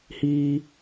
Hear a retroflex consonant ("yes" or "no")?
no